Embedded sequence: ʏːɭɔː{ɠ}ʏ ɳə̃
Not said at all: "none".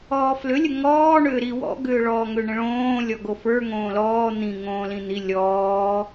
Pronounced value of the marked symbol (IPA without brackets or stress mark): ŋ